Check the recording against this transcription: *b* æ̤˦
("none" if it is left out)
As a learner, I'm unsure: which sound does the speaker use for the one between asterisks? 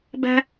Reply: b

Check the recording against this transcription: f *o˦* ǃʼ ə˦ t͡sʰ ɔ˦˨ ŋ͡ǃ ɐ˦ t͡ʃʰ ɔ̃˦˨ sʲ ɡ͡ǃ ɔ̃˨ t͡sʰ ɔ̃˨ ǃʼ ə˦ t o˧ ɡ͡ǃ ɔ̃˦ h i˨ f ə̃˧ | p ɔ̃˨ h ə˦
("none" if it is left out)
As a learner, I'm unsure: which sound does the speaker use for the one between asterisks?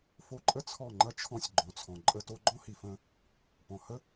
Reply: o˧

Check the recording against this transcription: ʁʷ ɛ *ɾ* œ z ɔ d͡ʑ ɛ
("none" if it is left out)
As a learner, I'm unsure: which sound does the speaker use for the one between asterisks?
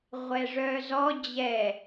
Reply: ʐ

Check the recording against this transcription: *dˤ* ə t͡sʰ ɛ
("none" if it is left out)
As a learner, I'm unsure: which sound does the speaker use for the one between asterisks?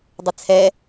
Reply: dˤ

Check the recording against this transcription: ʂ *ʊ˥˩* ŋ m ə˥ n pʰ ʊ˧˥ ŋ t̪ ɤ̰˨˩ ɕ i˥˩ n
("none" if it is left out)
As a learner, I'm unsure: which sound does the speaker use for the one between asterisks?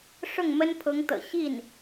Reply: ʊ˥˩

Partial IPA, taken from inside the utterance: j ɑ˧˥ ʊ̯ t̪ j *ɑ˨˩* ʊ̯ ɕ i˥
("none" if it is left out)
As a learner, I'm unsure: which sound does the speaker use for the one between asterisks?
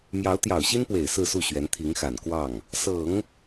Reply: ɑ˨˩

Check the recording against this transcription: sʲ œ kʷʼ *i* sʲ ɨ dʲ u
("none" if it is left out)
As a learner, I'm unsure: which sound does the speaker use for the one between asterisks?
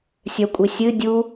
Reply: i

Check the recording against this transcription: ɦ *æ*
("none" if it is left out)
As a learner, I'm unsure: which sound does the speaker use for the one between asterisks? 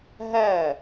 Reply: æ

